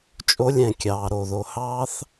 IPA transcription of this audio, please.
t͡ʃʼ o˧ lʲ ɛ̃˨ kʲ ɑː˨ ɾ o˨ ð o˨ h ɑː˦ θ

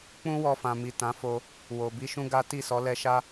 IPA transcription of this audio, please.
k͡p ũ˦ w ɔ˧ f ã˨ m i˨ t ã˨˦ f o˧ | w o˨ b i˧ ʃ ũ˦ ɡ a˦ t i˦˨ s ɔ˨˦ l ɛ˧ ʃ a˦

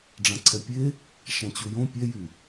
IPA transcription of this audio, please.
ɖ͡ʐ ã ǀʰ ɛ pʲ e | ʃ ã t͡ɕ u j õ pʲ ɛ j y

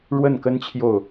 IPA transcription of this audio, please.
ɻ w ə˥˩ n k ə˥ n t͡ɕʰ j o˥˩ ʊ̯

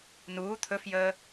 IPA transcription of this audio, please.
n uː t̪ʰ ɵ f j əː

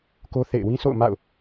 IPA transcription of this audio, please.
k o˦ θ ḛ˦˨ ɪ̯ w ĩ˦ sʰ o̰˦˨ ʊ̯ m a̰˦˨ ʊ̯

